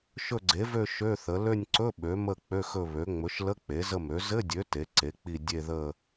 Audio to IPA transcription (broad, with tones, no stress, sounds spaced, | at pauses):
ʃ ɵ˦˨ ɡ͡ǀ e˩˥ v ø˦˨ ʃ ø˧˥˧ θ ə˩˥ l ø˦˨ nʲ ǀ ɵ˧˥˧ ɓ ø˩˥ m ə˦˨ k͡p ø˧˥˧ x ɵ˦˨ β ø˩˥ ŋ͡m ɵ˩˥ ʃ l ə˧˥˧ k͡p e˩˥ z ə˦˨ m ø˩˥ z ɘ˧˥˧ dʲ ø˩˥ t e˩˥ ǀ e˩˥ k͡p i˦˨ dʲ e˦˨ ð ə˦˨